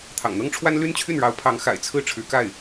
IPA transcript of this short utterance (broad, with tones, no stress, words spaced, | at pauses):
t̪ʰɑ̰˨˩ŋn̪ɤ˥ŋʈ͡ʂʰwa˥n ly˥nt͡ɕʰy˥˩nɻɑ˧˥ʊ̯ pʰɑ˧˥ŋ xa̰˨˩ɪ̯t͡sʰɹ̩˥˩ ʈ͡ʂʰɻ̩˧˥ka˥˩ɪ̯